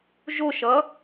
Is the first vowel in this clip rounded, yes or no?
yes